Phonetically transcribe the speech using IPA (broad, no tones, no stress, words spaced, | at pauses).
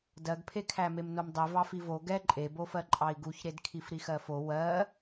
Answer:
dɜɡpʰekʰæ memnomdˤi vɑfivo ɡɛ ǃʼebofɜ ǃʼɑi̯ɡuçɾed kʰifɾixɜfo wɜ